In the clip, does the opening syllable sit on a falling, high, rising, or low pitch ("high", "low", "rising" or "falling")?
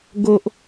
low